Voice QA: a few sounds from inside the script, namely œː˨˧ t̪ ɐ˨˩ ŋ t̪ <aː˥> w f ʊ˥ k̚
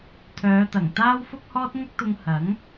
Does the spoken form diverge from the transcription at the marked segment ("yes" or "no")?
no